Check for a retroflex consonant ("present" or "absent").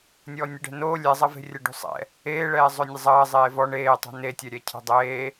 present